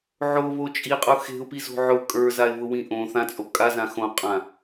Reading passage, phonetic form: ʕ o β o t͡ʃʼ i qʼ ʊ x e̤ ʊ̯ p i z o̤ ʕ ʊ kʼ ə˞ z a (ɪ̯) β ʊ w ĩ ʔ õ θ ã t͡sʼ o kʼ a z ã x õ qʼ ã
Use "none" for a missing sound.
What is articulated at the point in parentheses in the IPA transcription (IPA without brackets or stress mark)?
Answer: ɪ̯